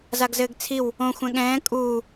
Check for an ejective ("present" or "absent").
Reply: present